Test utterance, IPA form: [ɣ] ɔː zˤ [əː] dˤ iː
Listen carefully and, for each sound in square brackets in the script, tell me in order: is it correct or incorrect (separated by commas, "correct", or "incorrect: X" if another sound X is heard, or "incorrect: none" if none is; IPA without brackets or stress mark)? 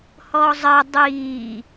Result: incorrect: h, correct